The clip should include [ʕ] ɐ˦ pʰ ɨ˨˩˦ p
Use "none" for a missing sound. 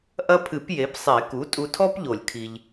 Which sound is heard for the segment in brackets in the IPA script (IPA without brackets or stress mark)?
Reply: ʔ